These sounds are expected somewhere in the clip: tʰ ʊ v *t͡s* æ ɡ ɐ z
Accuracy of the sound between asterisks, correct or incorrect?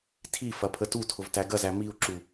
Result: incorrect